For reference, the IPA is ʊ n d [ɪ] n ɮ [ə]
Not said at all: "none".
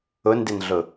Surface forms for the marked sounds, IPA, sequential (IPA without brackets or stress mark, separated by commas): ɪ, ʊ